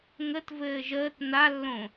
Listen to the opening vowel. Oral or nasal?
oral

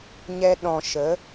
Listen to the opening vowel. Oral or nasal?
oral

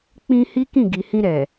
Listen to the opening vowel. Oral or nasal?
nasal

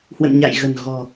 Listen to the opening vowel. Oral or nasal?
oral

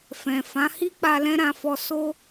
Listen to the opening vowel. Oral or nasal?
nasal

